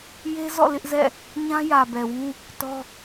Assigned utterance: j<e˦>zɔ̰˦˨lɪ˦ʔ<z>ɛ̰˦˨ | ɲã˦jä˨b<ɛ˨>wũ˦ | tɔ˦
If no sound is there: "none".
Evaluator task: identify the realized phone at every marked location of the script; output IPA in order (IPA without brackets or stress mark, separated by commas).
e˦, z, ɛ˨